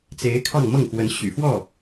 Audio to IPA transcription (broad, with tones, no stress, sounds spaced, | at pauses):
t͡s e˧˥ ɪ̯ kʰ ɑ˥˧ ŋ m ɤ˥˩ ŋ x w ə˧˥ n ɕ y̰˨˩ f w ɔ˥˩